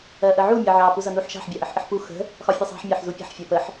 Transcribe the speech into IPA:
ɜʔəʕu mʲəʕɑ puzʌnuħʃɑ̤ħ bʲɑʔəħʔəħpu xə̤ | xɒfʲəsˤɑ̤ħ mʲɑħzupʲə̤ħ fʲɜpəħ

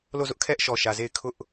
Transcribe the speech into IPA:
lo˦˨zʊ˦ʔkʰɛ˦ʔ ʃɔ˨ʃä˨ze˦˨ɪ̯ kʰʊ˦ʔ

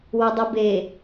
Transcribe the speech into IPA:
wɔdˤɵbe

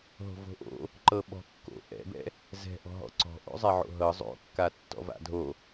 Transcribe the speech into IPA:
ɦo̤vo̤ʔo̰ | ǃɤɓɔ̤kːo̰ ʔɛ̰bɛ̰ | zɛ̤ʔɔ̤ɦɔ̰ ǀɔ̤ʔo̰ zˤɛʕo̰ɦɤ zˤo̰kːa tːɔ̰va̰dʱo

